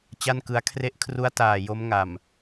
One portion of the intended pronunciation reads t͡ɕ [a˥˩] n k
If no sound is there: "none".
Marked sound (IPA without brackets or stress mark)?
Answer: a˥˩